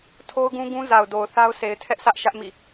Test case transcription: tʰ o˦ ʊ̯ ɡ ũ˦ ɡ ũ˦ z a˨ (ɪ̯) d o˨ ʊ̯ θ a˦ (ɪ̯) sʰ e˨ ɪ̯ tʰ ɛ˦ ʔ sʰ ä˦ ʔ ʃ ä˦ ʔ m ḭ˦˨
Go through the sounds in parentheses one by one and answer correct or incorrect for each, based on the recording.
incorrect: ʊ̯, incorrect: ʊ̯

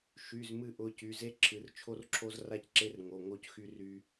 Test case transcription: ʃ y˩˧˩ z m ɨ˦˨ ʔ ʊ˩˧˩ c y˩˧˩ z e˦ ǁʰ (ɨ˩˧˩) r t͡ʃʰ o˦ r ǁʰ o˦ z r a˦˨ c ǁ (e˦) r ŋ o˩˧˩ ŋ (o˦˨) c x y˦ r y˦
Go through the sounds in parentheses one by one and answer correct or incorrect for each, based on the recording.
correct, correct, correct

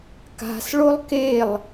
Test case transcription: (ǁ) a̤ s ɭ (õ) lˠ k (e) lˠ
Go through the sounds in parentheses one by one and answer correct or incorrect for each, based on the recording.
incorrect: k, incorrect: o, correct

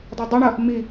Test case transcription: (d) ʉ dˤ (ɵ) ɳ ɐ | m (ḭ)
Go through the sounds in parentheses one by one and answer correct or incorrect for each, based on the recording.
incorrect: dˤ, correct, incorrect: i

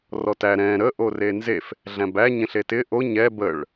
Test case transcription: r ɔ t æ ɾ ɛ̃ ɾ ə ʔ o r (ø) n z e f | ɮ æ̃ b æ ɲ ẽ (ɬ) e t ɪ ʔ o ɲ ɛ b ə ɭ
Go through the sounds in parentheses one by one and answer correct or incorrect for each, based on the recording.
incorrect: e, correct

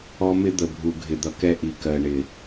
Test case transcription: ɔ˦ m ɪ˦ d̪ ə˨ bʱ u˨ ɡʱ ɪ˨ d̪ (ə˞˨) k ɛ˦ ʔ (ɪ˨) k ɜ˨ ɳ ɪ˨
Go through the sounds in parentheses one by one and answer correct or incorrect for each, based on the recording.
incorrect: ʌ˨, incorrect: i˨

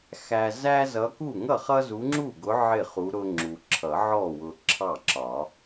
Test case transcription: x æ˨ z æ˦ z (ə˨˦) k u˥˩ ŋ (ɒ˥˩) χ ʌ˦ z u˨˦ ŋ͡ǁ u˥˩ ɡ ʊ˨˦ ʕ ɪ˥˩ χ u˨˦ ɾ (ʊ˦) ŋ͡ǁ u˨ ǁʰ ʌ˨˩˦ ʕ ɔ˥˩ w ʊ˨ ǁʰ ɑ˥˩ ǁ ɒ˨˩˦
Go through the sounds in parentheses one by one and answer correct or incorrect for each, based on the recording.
incorrect: ʌ˨˦, incorrect: ʌ˥˩, correct

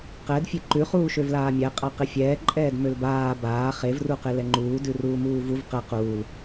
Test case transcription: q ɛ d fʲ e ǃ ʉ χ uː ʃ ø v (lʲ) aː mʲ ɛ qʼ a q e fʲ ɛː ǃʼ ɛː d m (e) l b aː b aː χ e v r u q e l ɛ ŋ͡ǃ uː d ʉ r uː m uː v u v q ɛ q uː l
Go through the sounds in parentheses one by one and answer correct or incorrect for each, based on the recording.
incorrect: l, incorrect: ø

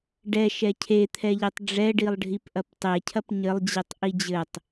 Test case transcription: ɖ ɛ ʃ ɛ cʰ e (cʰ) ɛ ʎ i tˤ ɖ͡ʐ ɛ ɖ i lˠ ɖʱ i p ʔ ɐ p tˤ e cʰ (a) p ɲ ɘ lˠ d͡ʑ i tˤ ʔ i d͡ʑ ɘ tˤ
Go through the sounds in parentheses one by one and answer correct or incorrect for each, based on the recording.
incorrect: t̪ʰ, incorrect: ɐ

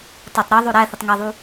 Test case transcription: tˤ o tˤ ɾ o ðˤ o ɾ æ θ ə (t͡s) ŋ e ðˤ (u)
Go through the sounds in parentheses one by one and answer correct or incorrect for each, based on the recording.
incorrect: tˤ, correct

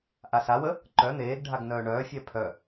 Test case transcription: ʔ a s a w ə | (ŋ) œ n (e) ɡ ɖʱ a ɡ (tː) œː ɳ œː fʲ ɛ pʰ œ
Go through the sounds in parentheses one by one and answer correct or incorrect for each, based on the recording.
incorrect: ǃ, incorrect: eː, incorrect: n

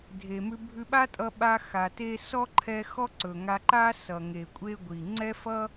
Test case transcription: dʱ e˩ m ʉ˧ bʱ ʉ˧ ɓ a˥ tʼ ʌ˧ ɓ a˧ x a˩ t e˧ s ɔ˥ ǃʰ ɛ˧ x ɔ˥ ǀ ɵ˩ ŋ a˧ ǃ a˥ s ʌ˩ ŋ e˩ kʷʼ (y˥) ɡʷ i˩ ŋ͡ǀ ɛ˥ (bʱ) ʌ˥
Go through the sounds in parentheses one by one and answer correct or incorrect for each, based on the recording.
incorrect: e˥, incorrect: f

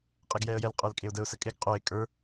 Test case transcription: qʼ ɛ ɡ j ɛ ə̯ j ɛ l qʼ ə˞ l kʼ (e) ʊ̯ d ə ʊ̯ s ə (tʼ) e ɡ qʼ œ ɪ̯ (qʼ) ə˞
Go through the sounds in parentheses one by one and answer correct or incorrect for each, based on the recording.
correct, incorrect: kʼ, incorrect: kʼ

